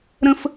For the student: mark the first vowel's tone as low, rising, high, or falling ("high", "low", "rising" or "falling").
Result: high